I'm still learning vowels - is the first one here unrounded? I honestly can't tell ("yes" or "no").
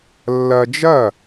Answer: yes